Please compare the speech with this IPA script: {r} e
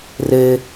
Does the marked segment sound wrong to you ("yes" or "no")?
no